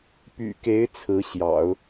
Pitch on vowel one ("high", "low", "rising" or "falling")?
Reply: low